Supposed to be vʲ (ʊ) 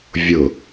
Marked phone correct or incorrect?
correct